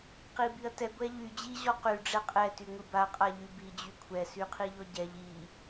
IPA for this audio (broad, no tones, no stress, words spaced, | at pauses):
qibiɐ̯tɛ ɡʷɛʎy d͡ʑi ʑɔqy ɖ͡ʐɛqʼɛ tyŋʷiba qʼaʎybi d͡ʑykʷʰɛ syqʰiʎɔɟɛʎ i